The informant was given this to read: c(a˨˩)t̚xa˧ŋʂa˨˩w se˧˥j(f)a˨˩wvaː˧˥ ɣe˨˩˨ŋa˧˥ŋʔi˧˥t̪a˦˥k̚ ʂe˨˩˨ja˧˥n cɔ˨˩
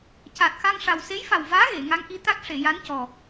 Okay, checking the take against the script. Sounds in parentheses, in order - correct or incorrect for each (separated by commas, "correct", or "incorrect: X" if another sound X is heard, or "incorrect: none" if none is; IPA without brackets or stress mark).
correct, correct